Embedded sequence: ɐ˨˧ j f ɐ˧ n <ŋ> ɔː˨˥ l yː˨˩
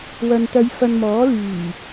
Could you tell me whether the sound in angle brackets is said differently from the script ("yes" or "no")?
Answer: yes